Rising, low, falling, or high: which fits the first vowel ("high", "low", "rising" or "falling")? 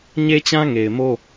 high